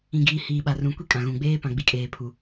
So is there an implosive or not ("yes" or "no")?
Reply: yes